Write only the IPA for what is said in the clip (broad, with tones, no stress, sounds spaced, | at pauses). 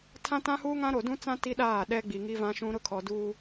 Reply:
tʰ ã˦ t ã˦ h uː˦ ŋ ã˦ ɾ o˨ d ũ˦ t͡s ã˦ t i˦ ɗ aː˦˨ ɗ ɛ˦ ɡ͡b i˨ ŋ i˦ v ã˦ ʃ ũ˦ ɾ ʊ˦ kʰ ɔ˨ d uː˦